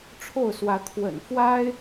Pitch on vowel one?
falling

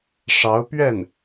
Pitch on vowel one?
rising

